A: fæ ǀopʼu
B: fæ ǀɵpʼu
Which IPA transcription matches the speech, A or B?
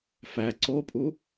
A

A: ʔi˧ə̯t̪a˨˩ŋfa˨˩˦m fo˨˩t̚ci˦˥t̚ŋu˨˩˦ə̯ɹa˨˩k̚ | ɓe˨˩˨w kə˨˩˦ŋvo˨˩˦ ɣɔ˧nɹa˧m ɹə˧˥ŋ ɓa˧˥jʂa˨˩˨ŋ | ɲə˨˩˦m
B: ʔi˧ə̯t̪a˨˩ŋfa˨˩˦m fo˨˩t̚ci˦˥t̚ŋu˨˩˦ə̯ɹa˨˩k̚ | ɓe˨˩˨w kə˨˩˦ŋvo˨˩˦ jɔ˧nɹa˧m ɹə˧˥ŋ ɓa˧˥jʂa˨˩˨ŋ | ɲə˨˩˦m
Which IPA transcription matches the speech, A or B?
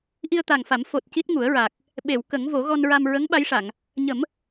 A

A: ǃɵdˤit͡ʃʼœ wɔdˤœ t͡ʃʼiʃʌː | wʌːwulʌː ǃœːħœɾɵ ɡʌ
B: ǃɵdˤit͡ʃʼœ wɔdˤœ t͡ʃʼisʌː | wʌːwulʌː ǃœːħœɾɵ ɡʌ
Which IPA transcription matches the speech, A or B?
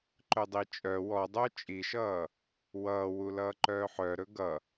A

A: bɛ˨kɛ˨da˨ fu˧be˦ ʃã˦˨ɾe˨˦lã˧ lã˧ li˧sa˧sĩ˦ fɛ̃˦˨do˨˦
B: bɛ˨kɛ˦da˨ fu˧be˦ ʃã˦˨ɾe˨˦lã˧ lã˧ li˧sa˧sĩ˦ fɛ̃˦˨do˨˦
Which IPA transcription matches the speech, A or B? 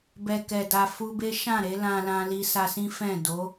A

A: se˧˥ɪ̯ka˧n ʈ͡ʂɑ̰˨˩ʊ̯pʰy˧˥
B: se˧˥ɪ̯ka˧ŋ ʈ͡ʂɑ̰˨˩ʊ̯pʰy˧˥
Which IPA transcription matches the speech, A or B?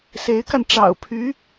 A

